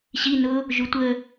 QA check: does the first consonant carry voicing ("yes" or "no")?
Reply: no